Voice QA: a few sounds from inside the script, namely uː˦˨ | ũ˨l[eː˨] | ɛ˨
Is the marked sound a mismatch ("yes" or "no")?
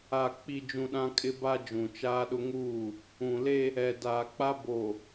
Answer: yes